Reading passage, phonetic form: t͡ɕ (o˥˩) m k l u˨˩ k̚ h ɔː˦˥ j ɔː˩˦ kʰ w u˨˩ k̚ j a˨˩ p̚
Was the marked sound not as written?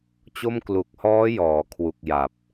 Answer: no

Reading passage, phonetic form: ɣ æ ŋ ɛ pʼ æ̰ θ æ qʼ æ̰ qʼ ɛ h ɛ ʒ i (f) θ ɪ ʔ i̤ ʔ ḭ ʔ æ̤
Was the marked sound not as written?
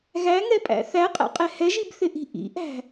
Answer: yes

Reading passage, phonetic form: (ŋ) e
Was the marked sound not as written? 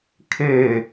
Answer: yes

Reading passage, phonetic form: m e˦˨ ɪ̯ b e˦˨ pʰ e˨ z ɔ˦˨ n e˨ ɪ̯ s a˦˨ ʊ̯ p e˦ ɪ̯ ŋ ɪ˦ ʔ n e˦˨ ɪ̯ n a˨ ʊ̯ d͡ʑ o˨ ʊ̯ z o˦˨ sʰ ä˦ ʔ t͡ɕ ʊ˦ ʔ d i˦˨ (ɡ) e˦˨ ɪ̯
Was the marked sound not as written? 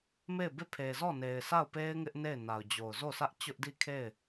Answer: yes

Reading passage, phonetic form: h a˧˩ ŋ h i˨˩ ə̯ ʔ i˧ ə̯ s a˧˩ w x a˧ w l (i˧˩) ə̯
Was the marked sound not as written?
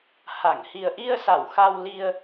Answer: yes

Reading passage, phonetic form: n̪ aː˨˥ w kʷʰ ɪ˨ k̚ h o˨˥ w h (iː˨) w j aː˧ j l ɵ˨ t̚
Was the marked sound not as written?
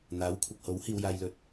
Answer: yes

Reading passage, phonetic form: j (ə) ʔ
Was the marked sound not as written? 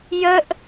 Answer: no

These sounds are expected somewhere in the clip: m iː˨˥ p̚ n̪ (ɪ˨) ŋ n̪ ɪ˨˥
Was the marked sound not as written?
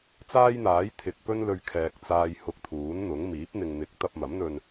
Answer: no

